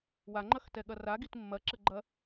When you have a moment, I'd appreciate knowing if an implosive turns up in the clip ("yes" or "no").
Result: yes